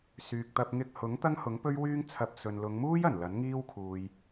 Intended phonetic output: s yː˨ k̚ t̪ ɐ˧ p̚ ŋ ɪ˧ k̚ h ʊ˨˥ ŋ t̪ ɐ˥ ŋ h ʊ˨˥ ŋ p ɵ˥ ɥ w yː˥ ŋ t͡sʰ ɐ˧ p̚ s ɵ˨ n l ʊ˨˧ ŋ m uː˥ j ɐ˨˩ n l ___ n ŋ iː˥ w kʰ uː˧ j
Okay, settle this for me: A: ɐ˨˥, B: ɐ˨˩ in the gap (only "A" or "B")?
A